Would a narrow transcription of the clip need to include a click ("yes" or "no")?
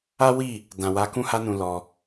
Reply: no